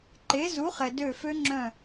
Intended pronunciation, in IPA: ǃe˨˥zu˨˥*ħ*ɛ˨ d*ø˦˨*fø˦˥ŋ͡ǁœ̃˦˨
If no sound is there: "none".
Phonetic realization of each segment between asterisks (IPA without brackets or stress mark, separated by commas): χ, ø˦˨